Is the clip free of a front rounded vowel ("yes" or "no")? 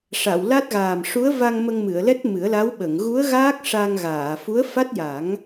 yes